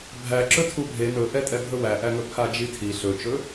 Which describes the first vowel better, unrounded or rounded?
unrounded